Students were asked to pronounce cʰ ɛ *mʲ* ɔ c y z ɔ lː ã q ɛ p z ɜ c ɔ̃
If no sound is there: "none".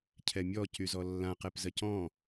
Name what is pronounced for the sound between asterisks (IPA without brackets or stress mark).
mʲ